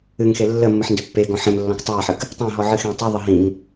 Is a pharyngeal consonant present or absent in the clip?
present